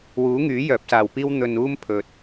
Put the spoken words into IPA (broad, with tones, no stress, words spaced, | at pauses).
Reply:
wuː˨˥ŋyː˨˥ jœː˨˥p̚saː˨wpiː˥w n̪ɵ˧nuː˥m pʰɵ˨t̚